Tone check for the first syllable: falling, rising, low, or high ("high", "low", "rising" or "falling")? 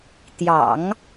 low